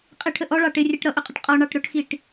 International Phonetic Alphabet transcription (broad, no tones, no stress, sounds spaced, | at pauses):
qʼ ɪ ʈʰ ə ʔ ɔ ɭ ɑ ʈ ɪ rʲ ɛ ʈ ɾ ʌ ʔ ʊ qʼ ə ʈ qʼ ɔ ɳ ɑ ʈ ɾ ʊ ʈ x i ʈ